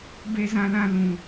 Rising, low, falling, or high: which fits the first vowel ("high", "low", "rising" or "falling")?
high